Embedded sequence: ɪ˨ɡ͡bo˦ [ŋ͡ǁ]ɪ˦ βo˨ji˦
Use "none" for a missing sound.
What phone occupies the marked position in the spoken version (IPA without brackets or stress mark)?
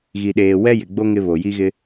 ŋ